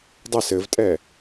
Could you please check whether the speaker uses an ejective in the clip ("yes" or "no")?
yes